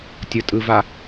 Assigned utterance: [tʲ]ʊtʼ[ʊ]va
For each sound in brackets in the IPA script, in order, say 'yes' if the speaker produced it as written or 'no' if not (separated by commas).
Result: yes, no